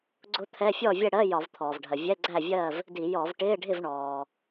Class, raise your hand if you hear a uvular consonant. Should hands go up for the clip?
no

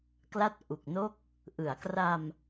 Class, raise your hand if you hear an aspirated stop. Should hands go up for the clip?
no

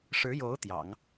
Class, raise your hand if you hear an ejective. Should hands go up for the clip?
no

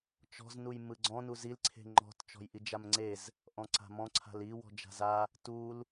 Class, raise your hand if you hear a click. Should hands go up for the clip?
yes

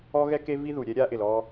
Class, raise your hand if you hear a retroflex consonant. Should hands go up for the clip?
no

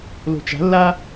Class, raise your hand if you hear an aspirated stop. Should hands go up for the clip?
no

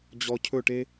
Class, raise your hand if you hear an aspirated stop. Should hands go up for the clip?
yes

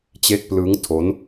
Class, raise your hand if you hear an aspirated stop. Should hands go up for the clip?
yes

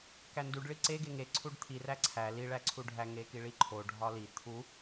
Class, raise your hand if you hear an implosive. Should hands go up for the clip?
no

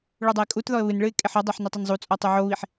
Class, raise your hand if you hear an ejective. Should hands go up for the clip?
yes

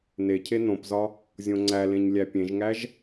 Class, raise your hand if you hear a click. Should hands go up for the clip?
yes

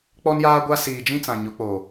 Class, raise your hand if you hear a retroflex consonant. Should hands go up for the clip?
no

